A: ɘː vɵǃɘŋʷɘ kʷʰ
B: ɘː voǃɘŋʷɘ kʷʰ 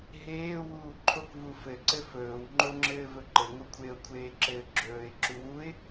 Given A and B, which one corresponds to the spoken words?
A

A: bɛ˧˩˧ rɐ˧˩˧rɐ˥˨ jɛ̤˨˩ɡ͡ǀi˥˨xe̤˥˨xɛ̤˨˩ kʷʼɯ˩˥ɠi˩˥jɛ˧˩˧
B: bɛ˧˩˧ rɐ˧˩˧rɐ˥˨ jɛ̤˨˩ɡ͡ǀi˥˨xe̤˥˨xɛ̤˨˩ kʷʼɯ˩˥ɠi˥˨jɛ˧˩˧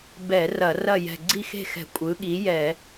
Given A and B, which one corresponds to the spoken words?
A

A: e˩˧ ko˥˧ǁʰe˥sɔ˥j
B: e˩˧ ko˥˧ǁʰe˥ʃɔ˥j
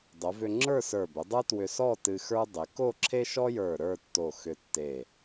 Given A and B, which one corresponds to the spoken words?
B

